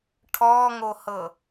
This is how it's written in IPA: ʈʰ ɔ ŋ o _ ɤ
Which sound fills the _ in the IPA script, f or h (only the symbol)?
h